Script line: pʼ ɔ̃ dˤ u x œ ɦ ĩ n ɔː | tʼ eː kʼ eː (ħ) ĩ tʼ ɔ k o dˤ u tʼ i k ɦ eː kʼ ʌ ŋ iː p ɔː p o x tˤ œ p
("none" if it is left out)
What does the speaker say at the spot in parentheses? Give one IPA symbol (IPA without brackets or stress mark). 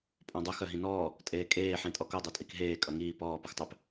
ħ